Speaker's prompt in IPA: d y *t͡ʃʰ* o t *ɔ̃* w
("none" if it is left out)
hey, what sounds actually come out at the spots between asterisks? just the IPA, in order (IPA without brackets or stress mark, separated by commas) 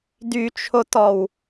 t͡ʃʰ, ɔ